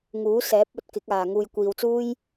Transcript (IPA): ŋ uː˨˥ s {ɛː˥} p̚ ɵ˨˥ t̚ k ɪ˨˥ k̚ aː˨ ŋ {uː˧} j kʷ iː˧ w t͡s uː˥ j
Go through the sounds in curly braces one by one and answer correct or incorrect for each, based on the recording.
incorrect: ɛː˨˥, correct

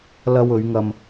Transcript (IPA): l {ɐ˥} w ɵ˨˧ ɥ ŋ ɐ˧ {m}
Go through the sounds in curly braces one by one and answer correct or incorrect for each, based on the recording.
incorrect: ɐ˧, correct

